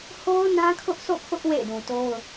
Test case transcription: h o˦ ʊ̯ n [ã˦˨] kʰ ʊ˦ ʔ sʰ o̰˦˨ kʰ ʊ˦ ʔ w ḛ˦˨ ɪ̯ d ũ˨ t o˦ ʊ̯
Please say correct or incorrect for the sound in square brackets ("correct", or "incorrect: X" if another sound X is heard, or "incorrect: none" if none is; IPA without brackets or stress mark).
incorrect: ã˦